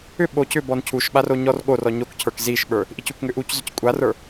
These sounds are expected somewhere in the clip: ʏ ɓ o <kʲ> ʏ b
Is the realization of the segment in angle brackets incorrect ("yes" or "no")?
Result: yes